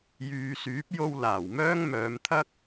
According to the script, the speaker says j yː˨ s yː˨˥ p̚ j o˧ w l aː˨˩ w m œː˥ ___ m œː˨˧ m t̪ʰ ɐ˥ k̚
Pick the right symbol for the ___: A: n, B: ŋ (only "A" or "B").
B